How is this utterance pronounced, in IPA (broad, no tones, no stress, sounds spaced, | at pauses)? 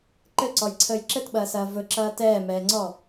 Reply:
ǃ ɘ ǀ ɔ j ǀʰ əː j ǁ ɘ t ɓ ɐː s ɐː v ɵ ǁ ɐː t ɛː m ɛː ŋ͡ǀ ɔ